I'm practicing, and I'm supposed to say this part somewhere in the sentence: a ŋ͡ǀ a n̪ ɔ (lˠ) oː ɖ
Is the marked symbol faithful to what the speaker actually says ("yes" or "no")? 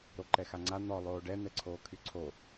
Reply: yes